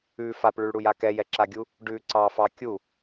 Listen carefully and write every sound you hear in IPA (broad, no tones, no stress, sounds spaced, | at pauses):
ʉ f a p ɭ ʉ ɭ ɽ u j a k ɛ j ɛ ǁ a ɡʲ u | ɖ ʉ ǀ ɑ f ɑ kʲ u